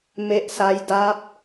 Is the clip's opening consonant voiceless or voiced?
voiced